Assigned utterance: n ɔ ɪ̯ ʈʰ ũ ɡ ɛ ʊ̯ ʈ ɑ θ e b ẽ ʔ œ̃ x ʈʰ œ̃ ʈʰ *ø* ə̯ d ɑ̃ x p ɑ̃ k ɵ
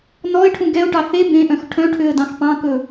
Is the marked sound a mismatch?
no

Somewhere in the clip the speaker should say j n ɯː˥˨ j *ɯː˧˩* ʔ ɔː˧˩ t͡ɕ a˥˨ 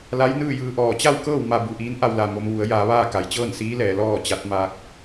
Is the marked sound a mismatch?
yes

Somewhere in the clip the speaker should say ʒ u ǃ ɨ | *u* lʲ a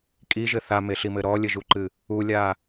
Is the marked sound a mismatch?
no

